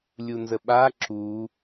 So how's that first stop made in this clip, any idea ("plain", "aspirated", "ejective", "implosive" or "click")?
implosive